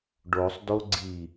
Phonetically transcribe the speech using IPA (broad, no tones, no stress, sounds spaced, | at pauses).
ɖ o sˤ d o ɡ͡ǀ i